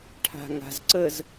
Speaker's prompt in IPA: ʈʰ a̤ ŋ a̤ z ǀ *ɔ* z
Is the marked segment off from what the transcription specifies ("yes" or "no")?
yes